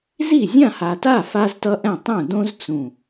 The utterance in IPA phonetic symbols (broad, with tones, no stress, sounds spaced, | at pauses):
z i˥˩ zʲ ã˥˩ h a˨˩ t a˥˩ f a˦ z t ʌ˦ ʔ ɛ̃˥˩ tˤ ũ˥˩ d õ˦ z t͡s ũ˨˩